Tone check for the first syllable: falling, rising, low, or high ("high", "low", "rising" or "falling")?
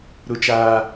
high